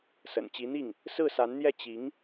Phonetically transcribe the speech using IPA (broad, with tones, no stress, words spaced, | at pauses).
sə̰˨˩n t͡ɕi˧˥n̪i˥˩ŋ | sɹ̩˥˩sa˧˥nn̪jɛ˥˩ t͡ɕi˧˥ŋ